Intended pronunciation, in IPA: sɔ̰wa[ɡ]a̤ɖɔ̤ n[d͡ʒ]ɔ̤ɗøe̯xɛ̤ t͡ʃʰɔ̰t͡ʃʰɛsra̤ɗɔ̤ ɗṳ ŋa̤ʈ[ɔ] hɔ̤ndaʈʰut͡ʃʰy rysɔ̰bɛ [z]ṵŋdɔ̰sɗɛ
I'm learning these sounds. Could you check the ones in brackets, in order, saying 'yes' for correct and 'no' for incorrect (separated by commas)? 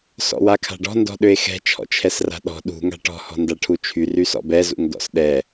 no, no, no, yes